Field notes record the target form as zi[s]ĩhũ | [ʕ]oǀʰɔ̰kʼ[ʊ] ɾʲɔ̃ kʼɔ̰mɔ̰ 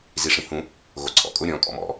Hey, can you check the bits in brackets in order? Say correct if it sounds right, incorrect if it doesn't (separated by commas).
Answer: incorrect, incorrect, correct